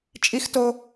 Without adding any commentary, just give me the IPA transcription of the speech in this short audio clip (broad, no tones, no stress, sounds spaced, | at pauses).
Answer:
t͡ʃʼ i x t o